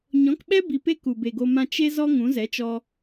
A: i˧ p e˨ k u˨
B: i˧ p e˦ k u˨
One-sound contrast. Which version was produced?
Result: B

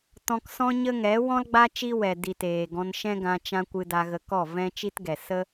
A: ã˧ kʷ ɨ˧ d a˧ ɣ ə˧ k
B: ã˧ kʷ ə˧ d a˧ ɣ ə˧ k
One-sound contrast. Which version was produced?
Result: A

